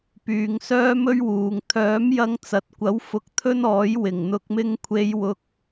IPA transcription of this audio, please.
p yː˨ ŋ s œː˥ m ɵ˥ ɥ w uː˨ ŋ t̪ʰ œː˨˥ m j ɐ˧ ŋ t͡s ɐ˨ t̚ kʷ ɐ˨˥ w f ʊ˧ k̚ t̪ʰ ɵ˥ n ɔː˨˥ j w ɪ˨˩ ŋ n̪ ʊ˧ k̚ m ɪ˥ ŋ kʷʰ e˧ j w ʊ˧ k̚

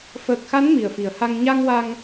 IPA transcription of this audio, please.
f əː˨˩ k̚ x a˧˥ n m i˨˩ ə̯ f i˨˩ ə̯ h a˧ ŋ ɲ a˧ ŋ w a˧ ŋ

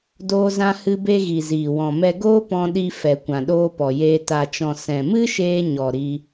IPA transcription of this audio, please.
d oː˧ z ã˧ h ɨ˧ b e˧ ɣ i˨ z iː˨ w ɔ̃˨ m ɛ˧ ɡ oː˦ p ɔ̃˧ ɗ i˧ f ɛ˨ kʷ ã˨ ɗ oː˧ p ɔ˨ j eː˧ t a˨ t͡ʃ ɔ̃˨ s ɛ̃˨ m ɨ˦ ʃ eː˧ ɲ ɔ˨ ɾ i˦

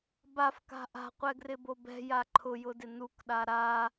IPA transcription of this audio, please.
b a f k a̤ ʔ a̤ qʷ ɛ ɡ r ɪ b o b ɛ̤ j a ǃʰ ʊ j ʊ d ɪ n u k ɗ a ɾ a

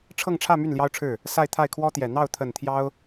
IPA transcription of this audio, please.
ʈ͡ʂʰ ɤ˥˧ ŋ ʈ͡ʂʰ ä˥˧ m y˥˩ n l j ɑ˥ ʊ̯ ʈ͡ʂʰ ɻ̩˥˩ | s a˥˧ ɪ̯ t̪ʰ a˥˩ ɪ̯ kʰ w ɔ˥ t̪ j ɛ˨˩ n̪ ɑ˥˩ ʊ̯ t̪ʰ ə˨˩ n t̪ʰ j ɑ˥ ʊ̯

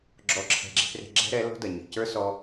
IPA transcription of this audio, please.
ɡ͡ǁ ɔ˨ ǁʰ ɛ̤˨ ɡ͡ǁ e̤˧ p r e̤˧ ɡ͡ǁ ɛ̤˦ ɾ ɛ˨˦ l ɔ̤˦ d ɐ˨ ɲ i̤˨ c ə˞˦ s ɔ˧

